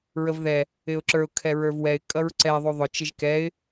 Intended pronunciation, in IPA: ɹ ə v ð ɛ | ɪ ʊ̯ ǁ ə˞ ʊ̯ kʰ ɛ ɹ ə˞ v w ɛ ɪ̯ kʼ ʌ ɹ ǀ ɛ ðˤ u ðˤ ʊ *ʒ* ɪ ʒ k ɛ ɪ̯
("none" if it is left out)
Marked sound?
t͡ʃ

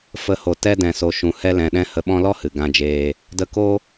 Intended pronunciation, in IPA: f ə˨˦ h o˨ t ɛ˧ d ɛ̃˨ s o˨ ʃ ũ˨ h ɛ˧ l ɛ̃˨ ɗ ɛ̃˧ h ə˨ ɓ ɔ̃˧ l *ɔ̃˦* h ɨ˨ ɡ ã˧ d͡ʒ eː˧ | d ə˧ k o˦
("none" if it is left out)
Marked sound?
ɔ˦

